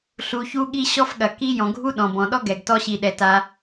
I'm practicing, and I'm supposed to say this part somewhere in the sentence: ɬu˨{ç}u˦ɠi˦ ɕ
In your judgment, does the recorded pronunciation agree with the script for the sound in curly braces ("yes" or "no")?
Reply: yes